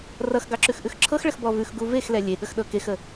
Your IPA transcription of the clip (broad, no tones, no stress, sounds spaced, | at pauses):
r ʌ x ɡ ɑ ǁ ʉ x ʔ ʉ x ǁʰ ɤ x ɭ ə x b ɔ v ʉ x ɡ u v e x l ɛ lʲ e ɠ ə x ɗ ɤ k e x ə